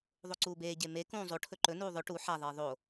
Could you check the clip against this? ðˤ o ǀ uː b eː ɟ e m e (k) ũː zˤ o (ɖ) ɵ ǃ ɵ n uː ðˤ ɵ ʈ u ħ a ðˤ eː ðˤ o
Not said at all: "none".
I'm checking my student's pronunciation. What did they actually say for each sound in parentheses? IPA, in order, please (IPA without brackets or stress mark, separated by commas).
k, ʈʰ